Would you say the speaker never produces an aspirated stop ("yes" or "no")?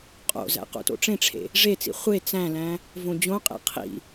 no